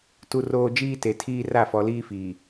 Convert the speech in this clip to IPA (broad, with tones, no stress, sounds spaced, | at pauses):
t u˨ r oː˨ d͡ʒ iː˦ t e˨ tʰ iː˦ r a˦˨ f ɔ˨ l iː˦ f iː˨